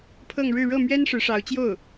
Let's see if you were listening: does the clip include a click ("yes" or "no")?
no